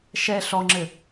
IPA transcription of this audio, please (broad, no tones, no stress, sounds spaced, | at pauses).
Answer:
ʃ ɛ ɬ ɔ ŋ͡ǁ ɘ